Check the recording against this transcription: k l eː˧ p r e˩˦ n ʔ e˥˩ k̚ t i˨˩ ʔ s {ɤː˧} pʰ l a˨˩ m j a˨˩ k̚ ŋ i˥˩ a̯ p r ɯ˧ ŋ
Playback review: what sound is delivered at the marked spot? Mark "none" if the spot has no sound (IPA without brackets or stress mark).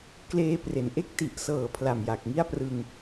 ɤː˨˩